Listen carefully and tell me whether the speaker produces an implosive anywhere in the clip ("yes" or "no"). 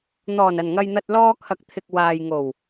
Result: no